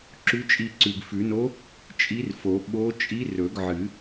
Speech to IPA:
ǁ ʉ˧˥ t͡ʃʼ i˦˨ ǀ ʉ˨ ɡ f ʉ˨˩˦ n o˧˥ | t͡ʃʼ i˧˥ r f o˨˩˦ ɓ o˧˥ t͡ʃʼ i˧˥ r ɵ˨˩˦ ɡ ʕ ɨ˨˩˦

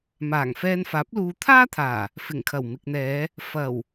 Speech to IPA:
m aː˨˩ ŋ f ɛː˧ n f aː˨˥ p̚ l uː˧ t̪ʰ aː˥ t̪ʰ aː˨˩ | f ɪ˨˩ ŋ kʰ ɐ˨˩ w m ɪ˨ k̚ n̪ ɛː˨˧ | f ɐ˨˩ w

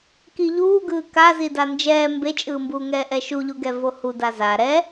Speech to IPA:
k i ʎ uː ɡ ɯː k a z i d a n d͡ʒ ɛː m b e t͡ʃʼ ɯː m b uː ŋ ɛː ʔ ɛ ʃ u ʎ u ɡ ɛ v o h u d a z a ɾ ɛ

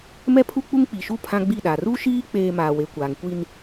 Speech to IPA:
m ɛ˦ pʰ u˦ k͡p u˦ ŋ k͡p i˨ ʃ u˦˨ pʰ ã˦ ɡ͡b i˦˨ ɗ a˨ r u˦ ʃ iː˦ k͡p eː˦ m aː˨ w e˨ kʷ aː˨ ŋ kʷ i˦ n

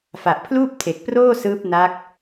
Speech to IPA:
f a˨˩ ʔ pʰ l uː˥˩ p̚ tʰ e˨˩ k̚ p r oː˥˩ s ɯː˦˥ p̚ n a˦˥ k̚

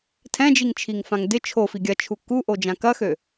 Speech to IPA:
tʰ ɛ̃ d͡ʒ i ŋ t͡ʃʰ i ŋ f ã ŋ d ɪ t͡ʃʰ o f i ɡʲ ɐ t͡ʃʰ u k u ʔ o d͡ʒ ã k ɐ x ø

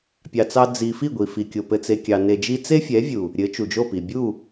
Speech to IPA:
pʲ ɑ˧ t͡s ɑ˦ d͡z i˧ f i˦˨ ɡʷ i˨ f i˨ kʲ o˨ p ɘ˧ t͡s e˧ kʲ ɑ˧ n e˧ d͡ʒ i˦ t͡s e˦ fʲ ɛ˨˦ vʲ u˨ | ɾʲ ɘ˨˦ t͡ʃ u˨ d͡ʒ o˦˨ p i˨ bʲ u˦˨

